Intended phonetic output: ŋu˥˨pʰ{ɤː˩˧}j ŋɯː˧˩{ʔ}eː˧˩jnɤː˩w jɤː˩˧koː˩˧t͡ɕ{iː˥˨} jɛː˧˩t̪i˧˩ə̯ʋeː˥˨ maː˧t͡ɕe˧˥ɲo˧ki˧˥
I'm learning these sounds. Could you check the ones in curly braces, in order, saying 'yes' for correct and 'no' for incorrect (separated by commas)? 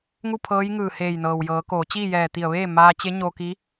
no, no, yes